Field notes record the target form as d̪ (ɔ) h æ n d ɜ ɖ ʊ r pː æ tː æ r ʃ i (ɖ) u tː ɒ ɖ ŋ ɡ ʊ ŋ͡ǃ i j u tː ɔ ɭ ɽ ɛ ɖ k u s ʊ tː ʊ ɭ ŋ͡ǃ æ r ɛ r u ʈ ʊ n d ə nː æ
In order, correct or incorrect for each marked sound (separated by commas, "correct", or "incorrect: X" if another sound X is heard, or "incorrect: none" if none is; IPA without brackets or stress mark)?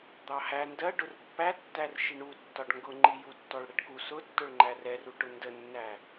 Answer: incorrect: ɑ, incorrect: ɳ